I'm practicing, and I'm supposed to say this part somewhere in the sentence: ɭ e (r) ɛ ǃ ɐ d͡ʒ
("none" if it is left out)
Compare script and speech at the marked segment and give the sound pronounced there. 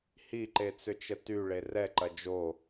r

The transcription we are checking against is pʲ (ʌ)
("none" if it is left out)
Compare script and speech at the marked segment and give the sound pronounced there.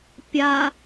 a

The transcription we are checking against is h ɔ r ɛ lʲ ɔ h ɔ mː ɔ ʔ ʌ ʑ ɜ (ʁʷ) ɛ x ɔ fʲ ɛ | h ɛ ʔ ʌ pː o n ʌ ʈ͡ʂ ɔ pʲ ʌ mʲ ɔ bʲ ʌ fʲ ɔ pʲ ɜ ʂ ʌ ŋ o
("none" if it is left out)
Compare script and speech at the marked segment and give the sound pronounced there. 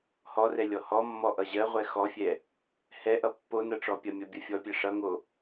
ʁʷ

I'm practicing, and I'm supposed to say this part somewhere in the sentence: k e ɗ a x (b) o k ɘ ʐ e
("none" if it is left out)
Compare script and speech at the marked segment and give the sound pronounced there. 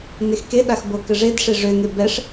b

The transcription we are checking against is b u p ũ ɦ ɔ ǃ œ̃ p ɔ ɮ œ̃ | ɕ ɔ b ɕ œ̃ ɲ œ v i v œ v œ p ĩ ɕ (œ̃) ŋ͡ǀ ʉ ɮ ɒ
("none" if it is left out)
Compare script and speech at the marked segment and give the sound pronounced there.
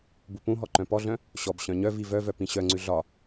œ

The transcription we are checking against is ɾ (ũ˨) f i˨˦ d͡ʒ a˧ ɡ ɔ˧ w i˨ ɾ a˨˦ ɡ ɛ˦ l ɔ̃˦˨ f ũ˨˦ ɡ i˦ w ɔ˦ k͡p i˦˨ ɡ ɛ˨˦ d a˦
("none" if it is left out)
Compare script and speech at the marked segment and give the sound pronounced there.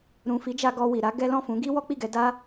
ũ˨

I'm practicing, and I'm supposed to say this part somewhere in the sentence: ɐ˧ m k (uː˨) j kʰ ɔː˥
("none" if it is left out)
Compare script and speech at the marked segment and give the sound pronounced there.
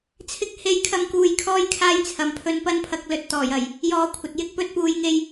uː˧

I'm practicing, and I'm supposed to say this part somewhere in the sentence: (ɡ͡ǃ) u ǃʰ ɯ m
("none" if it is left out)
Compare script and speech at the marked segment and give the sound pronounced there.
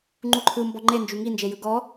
ŋ͡ǃ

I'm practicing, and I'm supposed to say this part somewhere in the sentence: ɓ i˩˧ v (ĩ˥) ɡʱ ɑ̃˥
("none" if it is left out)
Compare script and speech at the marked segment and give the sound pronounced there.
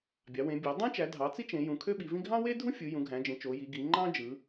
ĩ˥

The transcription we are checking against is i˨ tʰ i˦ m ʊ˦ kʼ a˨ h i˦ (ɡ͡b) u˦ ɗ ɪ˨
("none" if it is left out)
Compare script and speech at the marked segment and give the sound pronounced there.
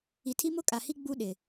ɡ͡b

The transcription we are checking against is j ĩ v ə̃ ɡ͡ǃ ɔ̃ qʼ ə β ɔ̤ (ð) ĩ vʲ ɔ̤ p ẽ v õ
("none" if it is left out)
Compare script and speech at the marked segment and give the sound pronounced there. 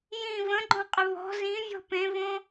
z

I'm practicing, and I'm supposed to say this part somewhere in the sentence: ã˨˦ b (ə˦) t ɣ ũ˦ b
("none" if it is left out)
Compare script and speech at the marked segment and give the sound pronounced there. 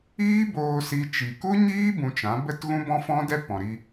ə˦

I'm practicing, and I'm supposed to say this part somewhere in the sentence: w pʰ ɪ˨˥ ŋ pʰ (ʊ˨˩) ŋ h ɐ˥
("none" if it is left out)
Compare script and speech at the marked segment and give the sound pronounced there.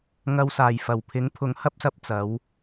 ʊ˨˥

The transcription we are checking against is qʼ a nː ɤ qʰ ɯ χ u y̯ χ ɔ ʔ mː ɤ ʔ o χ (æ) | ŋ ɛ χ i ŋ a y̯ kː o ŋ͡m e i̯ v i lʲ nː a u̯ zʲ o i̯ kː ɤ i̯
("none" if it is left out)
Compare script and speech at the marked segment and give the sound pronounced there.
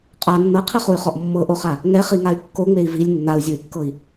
a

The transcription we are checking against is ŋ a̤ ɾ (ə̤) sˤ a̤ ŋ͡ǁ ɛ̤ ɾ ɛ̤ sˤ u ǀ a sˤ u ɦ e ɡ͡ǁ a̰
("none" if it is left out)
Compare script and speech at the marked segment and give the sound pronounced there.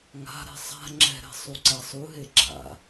ɛ̤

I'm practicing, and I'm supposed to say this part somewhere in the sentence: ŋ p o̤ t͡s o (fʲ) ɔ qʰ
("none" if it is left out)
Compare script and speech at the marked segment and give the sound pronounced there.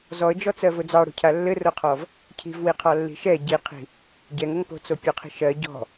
pʲ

